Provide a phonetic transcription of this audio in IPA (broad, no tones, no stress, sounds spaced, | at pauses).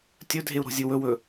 tʲ ɵ dʱ e u̯ ɾ o̤ zʲ ɨ w ɵ w ɵ